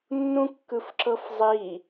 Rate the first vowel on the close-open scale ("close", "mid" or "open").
close